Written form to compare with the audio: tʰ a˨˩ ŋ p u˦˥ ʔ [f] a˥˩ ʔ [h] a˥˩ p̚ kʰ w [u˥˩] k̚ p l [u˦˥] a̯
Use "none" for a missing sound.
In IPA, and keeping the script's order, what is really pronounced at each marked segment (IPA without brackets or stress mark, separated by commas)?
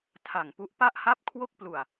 p, h, o˥˩, u˧